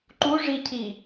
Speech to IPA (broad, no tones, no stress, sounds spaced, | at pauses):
ǃ u ʐ i cʰ i